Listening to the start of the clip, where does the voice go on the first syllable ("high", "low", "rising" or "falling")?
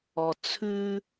low